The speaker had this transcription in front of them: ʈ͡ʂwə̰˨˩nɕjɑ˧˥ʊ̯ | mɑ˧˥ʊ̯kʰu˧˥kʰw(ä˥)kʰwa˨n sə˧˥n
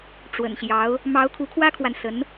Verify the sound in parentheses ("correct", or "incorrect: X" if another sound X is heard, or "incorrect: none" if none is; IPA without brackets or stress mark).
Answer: correct